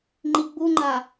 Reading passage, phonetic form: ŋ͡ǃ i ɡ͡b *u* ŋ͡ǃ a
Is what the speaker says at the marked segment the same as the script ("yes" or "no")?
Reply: yes